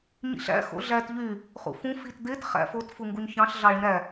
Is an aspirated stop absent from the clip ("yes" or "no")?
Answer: yes